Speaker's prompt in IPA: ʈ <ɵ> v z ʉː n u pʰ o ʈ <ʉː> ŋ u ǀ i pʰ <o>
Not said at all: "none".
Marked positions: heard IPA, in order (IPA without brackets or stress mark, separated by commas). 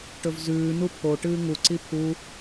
ɵ, ɨː, u